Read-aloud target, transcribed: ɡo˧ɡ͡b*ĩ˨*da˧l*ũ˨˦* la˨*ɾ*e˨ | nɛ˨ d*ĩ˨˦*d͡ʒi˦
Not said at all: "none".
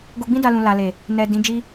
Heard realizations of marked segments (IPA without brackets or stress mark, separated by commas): ĩ˦, ũ˨, l, ĩ˨˦